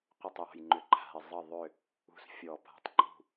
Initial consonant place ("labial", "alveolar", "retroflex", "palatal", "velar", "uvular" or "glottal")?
uvular